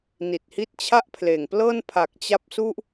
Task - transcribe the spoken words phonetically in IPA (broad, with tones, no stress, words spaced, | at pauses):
ni˨˩t̚hi˦˥t̚t͡ɕʰa˥˩ʔpʰleː˨˩ŋ plɤː˥˩npʰa˨˩k̚t͡ɕa˦˥p̚su˥˩ʔ